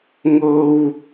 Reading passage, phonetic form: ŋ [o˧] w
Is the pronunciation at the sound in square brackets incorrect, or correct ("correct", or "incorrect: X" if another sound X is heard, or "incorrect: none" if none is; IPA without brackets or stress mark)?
correct